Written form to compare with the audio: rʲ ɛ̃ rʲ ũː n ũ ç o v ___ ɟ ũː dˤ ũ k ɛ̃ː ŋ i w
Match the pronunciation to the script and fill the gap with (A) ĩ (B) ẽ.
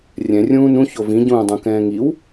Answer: A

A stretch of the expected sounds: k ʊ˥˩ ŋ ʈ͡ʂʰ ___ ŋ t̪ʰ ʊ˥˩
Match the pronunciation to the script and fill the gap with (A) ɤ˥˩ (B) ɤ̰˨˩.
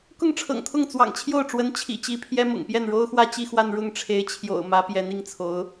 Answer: B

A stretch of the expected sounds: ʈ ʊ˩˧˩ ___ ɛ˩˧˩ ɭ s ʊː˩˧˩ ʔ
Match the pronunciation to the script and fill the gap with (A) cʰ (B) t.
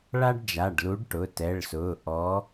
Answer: B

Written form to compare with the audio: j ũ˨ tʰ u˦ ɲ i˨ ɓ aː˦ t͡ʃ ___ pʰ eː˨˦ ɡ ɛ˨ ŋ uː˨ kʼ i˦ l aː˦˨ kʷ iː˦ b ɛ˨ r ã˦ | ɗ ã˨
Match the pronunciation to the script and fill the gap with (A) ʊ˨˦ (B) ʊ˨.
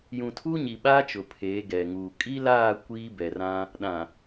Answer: B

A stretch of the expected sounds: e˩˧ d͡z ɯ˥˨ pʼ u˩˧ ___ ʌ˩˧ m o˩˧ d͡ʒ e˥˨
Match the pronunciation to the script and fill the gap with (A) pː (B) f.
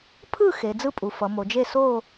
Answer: B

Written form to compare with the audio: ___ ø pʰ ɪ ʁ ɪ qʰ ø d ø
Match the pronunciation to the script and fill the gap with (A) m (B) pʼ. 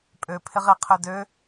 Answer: B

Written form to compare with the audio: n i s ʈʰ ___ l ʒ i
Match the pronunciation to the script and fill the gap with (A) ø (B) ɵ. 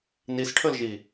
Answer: B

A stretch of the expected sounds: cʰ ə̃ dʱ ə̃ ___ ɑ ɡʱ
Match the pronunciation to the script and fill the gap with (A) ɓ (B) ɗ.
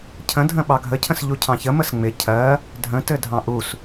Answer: A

